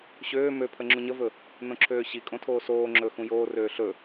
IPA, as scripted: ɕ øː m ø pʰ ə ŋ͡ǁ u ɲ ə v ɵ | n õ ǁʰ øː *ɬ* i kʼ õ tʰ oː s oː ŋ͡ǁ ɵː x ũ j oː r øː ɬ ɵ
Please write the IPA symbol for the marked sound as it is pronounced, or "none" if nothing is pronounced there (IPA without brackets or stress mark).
ɕ